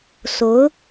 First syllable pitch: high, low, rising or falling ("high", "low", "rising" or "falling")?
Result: rising